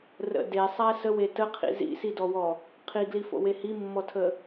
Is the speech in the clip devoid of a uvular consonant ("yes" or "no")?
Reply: no